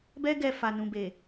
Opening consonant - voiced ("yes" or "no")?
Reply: yes